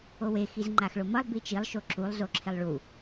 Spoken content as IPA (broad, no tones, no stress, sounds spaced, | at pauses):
o w e x i z ŋ͡ǃ a x ɭ o m ʌ lˠ b i t͡ʃ i lˠ ʃ o ǁ u lˠ z o ǁʰ e lˠ ɭ u